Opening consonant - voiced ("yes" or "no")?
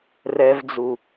yes